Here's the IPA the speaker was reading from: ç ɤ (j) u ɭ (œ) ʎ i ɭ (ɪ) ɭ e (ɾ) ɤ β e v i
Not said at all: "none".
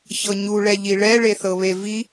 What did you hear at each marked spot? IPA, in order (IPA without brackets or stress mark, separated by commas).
ɲ, ɛ, ɛ, θ